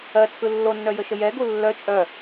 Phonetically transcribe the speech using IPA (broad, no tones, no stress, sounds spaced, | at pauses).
ɜ t͡sʰ ɯ lː o nː œ j ə ʃ ə j ɛ ɡ u lː œ t͡ʃʼ œ